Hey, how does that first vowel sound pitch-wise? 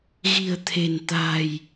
low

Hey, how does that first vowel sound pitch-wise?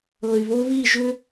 low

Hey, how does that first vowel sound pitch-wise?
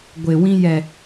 low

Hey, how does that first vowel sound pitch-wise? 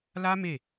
high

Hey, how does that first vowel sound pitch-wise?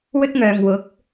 high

